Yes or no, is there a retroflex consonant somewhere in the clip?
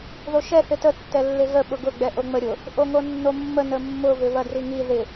no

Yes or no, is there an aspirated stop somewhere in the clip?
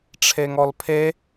yes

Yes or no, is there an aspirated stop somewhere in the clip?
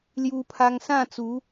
yes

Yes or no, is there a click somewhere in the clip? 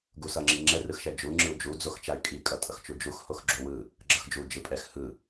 yes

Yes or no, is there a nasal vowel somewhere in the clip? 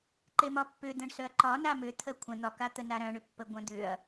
yes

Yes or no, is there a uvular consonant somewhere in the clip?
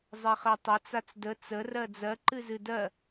yes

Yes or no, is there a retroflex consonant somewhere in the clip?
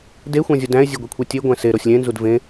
no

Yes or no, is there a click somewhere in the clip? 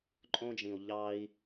yes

